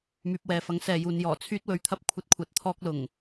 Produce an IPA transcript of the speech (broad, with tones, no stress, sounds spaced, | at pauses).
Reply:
m yː˨ p̚ w ɛː˨ f ɐ˨˥ ŋ s ɛː˨ j uː˨ n j ɔː˨˩ t͡sʰ yː˧ t̚ w ɵ˨ ɥ t̪ʰ ɐ˧ p̚ kʷʰ ɐ˧ t̚ kʷʰ ɐ˨ t̚ t̪ʰ ɔː˧ k̚ l ʊ˨˩ ŋ